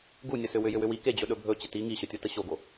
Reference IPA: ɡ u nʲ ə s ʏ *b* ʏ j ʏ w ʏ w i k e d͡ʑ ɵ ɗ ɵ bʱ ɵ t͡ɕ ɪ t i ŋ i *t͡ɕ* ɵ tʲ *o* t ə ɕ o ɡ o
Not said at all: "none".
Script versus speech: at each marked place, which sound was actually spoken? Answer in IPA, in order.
w, ɕ, o

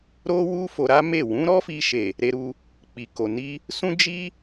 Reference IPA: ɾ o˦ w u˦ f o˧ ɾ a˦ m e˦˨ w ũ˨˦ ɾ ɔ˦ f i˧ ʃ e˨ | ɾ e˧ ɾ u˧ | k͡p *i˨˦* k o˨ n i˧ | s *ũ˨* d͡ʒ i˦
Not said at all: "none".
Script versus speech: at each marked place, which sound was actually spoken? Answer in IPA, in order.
i˨, ũ˦

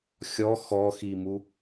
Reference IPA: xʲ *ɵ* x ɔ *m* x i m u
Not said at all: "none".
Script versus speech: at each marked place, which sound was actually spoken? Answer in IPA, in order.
ɔ, none

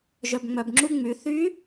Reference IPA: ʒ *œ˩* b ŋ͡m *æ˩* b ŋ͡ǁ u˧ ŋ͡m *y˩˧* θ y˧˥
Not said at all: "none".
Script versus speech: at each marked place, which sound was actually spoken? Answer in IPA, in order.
œ˩, œ˩, y˩˧

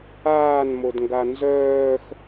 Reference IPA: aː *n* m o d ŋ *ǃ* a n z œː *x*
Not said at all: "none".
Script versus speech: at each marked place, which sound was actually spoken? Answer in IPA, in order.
n, ɡ, x

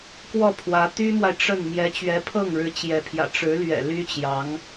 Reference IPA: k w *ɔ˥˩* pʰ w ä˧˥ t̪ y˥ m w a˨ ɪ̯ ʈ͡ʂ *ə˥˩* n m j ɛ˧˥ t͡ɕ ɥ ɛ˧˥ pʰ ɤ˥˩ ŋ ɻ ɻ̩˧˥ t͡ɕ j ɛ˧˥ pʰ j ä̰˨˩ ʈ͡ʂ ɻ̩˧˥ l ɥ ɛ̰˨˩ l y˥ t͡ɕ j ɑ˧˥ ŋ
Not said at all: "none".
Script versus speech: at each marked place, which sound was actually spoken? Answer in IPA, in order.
ɔ˥˩, ə˥˩

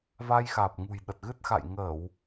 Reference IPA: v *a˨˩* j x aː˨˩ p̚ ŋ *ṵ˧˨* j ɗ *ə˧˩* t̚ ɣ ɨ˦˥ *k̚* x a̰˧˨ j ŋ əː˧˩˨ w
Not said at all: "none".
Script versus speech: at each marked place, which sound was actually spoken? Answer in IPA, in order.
a˧, ṳ˨˩, ə˨˩, t̚

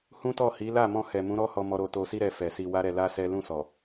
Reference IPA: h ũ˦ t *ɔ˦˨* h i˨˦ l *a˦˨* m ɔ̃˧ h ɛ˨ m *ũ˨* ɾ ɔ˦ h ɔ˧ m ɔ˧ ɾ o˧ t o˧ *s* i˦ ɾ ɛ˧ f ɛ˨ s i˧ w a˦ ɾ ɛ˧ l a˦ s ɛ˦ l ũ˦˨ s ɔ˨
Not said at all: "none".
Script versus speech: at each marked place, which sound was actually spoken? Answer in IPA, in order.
ɔ˦˨, a˦˨, ũ˨˦, s

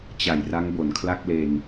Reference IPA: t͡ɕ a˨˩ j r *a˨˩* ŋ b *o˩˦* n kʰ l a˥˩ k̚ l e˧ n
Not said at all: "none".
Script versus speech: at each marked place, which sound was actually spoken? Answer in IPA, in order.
a˦˥, o˩˦

